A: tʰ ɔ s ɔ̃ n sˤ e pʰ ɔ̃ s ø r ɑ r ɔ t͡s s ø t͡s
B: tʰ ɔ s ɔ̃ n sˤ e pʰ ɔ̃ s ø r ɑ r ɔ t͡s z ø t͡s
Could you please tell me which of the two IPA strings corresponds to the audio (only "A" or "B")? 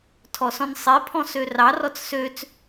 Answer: A